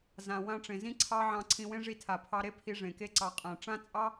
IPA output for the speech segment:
z ã˨ w ã˧ ʈ͡ʂ ẽ˨ z ĩ˦ ǀʰ ɑ˦ ʕ ɑ̃˧ ǀʰ ĩ˧ w ẽ˦ ʐ i˧ tʰ a˨ pʰ ɑ˧ ɾ e˦ pʰ i˧ ʐ ẽ˨ k e˦ ǀ ɑ˧ qʼ ã˨ ʈ͡ʂ ã˦ t͡sʼ ɑ˦

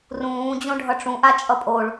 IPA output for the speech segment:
r ũː d͡ʑ õ ɖʱ ʌ ʈ͡ʂ ũ ʔ a t͡ʃʼ ʌ pʼ o ɭ

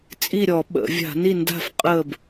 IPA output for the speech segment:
t͡sʼ i˥˨ ɾʲ ɔ˧˩˧ ɓ ə̰˧˩˧ vʲ a̤˧˩˧ n i˥˨ n d a̤˥˨ f qʼ əː˥˨ b

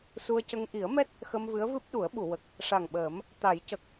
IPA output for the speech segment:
s u˧ ə̯ c ə˧ ŋ ʔ i˨˩˦ ə̯ m ɛ˦˥ t̚ | x ə˧ m v ɨ˧˥ ə̯ v ɨ˦˥ p̚ ɗ u˨˩˦ ə̯ ɓ u˨˩˨ w ə˨˩ k̚ | ʂ a˨˩ ŋ ɓ əː˨˩˦ m | t̪ a˨˩˦ j c ə˨˩ k̚

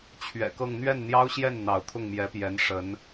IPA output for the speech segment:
t͡ɕʰ ɥ ɛ̰˨˩ k ɤ˥˧ ŋ n̪ ɥ ɛ˥˩ n n̪ j ɑ˥ ʊ̯ ɕ j ɛ˥˩ n n̪ ɑ˧˥ ʊ̯ t̪ʰ ʊ˥˩ ŋ m j ɛ˧˥ p j ɛ˧˥ n ʂ ə˧˥ n

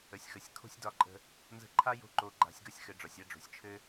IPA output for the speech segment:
ə˨ sʲ x ə˨ sʲ kʰ o̤˦ sʲ d ɒ˧ ǃʼ ə̤˧ | n z ə̤˧ ǃʰ a˦ j o̤˦ ǃ o˧ ɡ͡ǃ a̤˧ sʲ ɡ ʌ˦ sʲ x ɘ˨ ɖ͡ʐ ɒ˨ sʲ a˦ ɖ͡ʐ o̤˨ sʲ t͡ʃʰ ɘ˦

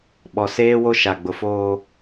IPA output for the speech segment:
ɓ ɔ˨ s eː˦ w o˦ ʃ a˨ ɡ͡b ʊ˨ f oː˦

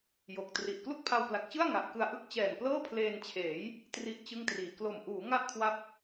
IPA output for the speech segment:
j o˨˩ k̚ t r i˨˩ ʔ k l u˥˩ k̚ pʰ a˧ w p l a˨˩ k̚ t͡ɕ ɯ˥˩ a̯ ŋ a˨˩ ʔ k ɯ˧ a̯ ʔ ɯ˥˩ k̚ t͡ɕ ɛː˨˩ n p l ɤː˥˩ pʰ l eː˧ n t͡ɕʰ eː˩˦ j | t r i˥˩ ʔ t͡ɕ ɯ˥˩ ŋ t r iː˨˩ k l o˨˩ m ʔ uː˩˦ ŋ a˥˩ ʔ kʰ w a˦˥ p̚

